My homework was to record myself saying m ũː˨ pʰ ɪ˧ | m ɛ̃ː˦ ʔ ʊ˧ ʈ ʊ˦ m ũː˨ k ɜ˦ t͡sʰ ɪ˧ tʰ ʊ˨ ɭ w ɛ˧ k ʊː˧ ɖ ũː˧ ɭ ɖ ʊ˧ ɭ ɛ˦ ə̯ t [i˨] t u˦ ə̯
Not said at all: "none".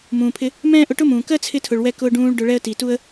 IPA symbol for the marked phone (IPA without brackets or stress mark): i˨